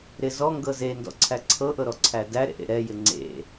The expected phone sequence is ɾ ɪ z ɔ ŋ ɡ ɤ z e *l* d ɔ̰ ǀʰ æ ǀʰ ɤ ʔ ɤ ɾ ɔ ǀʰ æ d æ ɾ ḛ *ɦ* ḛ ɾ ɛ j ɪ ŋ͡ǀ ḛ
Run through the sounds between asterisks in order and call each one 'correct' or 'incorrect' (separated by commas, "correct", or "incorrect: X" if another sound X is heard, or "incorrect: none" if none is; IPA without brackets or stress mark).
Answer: incorrect: n, incorrect: ʔ